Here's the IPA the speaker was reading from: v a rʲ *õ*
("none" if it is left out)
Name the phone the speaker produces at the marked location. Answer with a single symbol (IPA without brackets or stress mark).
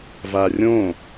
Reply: õ